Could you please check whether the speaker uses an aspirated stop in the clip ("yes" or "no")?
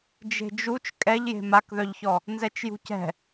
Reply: no